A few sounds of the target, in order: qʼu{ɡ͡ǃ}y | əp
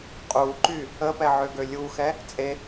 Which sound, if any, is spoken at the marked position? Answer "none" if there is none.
ǃ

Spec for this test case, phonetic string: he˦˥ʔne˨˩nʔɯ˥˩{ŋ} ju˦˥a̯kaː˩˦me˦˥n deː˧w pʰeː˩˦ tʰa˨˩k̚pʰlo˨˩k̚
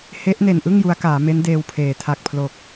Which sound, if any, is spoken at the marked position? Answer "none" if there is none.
ŋ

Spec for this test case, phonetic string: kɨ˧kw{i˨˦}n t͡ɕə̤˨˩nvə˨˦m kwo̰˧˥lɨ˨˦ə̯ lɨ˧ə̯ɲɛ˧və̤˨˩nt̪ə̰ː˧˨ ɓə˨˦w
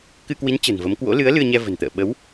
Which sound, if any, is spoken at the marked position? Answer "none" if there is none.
i˨˦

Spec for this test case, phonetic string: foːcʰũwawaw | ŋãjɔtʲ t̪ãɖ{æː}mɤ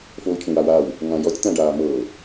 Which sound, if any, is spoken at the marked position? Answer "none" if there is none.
aː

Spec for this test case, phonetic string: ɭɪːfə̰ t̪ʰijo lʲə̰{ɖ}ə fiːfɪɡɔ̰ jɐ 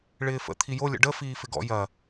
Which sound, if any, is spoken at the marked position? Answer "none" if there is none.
ɖ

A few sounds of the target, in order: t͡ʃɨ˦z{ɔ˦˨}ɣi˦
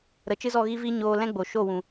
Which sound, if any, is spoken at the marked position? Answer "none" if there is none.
ɔ˦˨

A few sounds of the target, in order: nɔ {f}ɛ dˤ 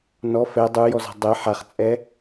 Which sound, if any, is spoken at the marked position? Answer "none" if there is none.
f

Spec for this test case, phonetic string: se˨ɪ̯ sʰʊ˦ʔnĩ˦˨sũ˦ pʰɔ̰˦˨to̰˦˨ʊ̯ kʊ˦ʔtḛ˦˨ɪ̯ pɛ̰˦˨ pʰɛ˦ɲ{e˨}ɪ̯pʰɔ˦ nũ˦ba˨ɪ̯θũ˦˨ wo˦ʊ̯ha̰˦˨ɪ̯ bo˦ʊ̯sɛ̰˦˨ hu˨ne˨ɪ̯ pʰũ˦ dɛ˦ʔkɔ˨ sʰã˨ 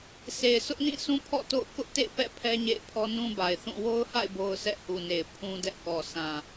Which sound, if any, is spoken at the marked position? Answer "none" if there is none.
ḛ˦˨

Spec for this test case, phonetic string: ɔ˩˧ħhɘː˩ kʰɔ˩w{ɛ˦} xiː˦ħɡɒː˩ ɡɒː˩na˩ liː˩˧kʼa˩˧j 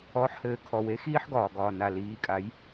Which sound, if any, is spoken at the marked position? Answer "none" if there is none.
e˦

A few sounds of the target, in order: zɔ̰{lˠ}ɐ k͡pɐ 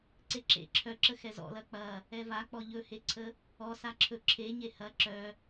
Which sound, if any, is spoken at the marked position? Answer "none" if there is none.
l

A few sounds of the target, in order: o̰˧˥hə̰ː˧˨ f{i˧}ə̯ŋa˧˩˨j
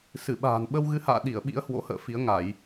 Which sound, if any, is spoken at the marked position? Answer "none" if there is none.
i˨˦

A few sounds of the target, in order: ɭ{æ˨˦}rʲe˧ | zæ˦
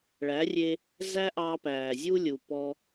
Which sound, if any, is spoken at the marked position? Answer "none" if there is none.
æ˨˦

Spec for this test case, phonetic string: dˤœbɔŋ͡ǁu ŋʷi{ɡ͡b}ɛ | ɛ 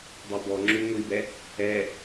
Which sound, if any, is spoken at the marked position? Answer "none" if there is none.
b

